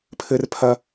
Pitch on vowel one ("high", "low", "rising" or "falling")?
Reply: high